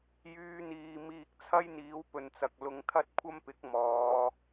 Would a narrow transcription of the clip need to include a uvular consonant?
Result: no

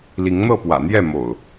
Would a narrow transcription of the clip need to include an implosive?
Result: no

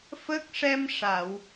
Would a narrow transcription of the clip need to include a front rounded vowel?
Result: no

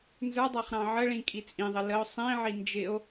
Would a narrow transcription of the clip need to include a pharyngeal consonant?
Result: yes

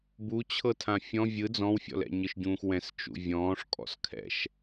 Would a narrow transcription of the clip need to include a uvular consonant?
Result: no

